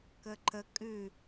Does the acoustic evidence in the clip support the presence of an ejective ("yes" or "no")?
yes